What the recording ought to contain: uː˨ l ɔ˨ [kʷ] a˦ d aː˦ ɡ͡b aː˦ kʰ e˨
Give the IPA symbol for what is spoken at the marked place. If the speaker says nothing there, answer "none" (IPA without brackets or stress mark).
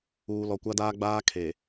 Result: kʷ